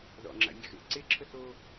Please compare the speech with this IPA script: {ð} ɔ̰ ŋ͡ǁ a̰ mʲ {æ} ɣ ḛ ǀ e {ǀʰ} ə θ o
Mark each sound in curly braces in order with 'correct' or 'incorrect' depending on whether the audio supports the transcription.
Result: correct, incorrect, incorrect

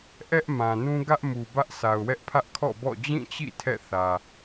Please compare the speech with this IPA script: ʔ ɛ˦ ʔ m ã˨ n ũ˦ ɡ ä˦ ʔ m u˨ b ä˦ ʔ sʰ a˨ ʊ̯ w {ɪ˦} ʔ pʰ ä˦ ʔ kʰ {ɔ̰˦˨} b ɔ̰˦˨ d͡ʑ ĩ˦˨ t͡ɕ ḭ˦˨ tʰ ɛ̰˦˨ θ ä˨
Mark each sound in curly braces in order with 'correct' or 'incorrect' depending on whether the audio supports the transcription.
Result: incorrect, correct

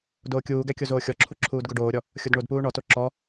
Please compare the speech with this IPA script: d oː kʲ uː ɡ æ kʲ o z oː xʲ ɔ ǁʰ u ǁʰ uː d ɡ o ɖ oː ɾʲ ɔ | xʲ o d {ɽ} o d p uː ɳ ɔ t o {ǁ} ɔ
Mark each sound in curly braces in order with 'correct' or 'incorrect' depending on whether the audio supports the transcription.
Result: incorrect, correct

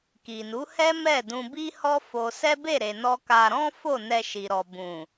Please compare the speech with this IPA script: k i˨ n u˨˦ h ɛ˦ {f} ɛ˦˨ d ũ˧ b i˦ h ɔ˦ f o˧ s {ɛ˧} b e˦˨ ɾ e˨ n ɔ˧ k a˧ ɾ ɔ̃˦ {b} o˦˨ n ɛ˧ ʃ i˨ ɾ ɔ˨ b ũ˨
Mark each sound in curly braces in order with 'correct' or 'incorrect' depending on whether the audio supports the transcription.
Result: incorrect, incorrect, incorrect

